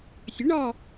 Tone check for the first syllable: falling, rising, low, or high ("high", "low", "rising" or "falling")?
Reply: rising